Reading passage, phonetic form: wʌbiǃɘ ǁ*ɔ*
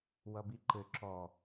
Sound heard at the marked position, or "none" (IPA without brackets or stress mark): ɔ